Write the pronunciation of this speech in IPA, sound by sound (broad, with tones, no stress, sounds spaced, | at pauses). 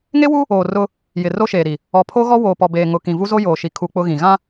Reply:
ŋ e˦ w u˦ | oː˨ r ʊ˦ | j ɪ˨ r o˦ ʃ eː˨ ɾ i˨ | ɔ˨ pʰ o˦ ɣ ɔ˦ w oː˨ p ɔ˨ b eː˨ ŋ ʊ˨ k ĩ˨ v u˦ z o˦ j oː˨ ʃ i˨ kʰ uː˦ k͡p ʊ˦ ɣ ĩ˨ ɣ ã˦